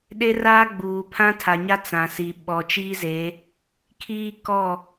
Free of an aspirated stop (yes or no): no